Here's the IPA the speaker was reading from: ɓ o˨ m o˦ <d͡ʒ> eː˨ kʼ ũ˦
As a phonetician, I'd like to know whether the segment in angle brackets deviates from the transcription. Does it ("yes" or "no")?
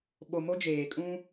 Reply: no